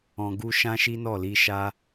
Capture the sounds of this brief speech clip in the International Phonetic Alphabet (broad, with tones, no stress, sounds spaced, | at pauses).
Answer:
ɔ̃˧ ɡ u˦ ʃ ã˦ ʃ i˦ n ɔ˦˨ l i˧ ʃ a˦